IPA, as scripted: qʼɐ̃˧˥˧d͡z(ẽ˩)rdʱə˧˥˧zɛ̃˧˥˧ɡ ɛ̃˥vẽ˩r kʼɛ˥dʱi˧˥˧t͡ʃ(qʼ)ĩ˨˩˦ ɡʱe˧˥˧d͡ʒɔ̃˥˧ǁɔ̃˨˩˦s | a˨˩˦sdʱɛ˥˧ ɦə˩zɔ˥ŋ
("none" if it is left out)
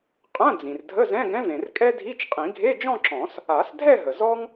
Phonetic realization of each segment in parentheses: ĩ˩, qʼ

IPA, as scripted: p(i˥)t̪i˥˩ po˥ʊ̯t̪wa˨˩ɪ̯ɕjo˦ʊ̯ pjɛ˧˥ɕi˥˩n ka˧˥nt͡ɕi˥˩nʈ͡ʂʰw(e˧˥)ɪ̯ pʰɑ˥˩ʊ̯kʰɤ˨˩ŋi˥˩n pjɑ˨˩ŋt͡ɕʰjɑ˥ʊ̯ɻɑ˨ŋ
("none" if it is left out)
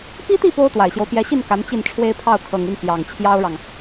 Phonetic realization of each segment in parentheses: i˥, e˥

